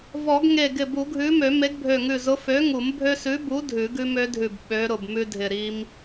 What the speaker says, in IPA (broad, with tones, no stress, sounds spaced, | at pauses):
v ɔ˨˩˦ ɡ ŋ e˧˩ ɡ ɪ˧˩ b u˨˩˦ ɡʱ ʉ˨˥ m ø˨˩˦ m e˨˥ ɡ bʱ ø˧˩ ŋ ʉ˧˩ z ʊ˨˥ f ø˨˥ ŋ u˨˩˦ m bʱ ø˦ s ʉ˨˥ b u˨˥ dʱ ʉ˨˩˦ ɡ ʉ˦ m ø˨˥ dʱ ʉ˧˩ b ɓ ø˨˥ ɾ ʊ˧˩ b m ʉ˦ dʱ ɪ˧˩ ɾ i˦ m